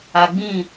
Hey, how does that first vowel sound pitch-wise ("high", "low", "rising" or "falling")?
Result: low